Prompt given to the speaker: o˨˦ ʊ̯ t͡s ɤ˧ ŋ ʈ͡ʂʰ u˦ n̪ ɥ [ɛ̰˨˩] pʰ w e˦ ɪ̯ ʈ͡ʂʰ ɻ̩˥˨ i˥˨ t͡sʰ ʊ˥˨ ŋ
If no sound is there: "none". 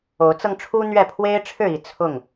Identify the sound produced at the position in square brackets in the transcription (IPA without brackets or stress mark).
ɛ˥˨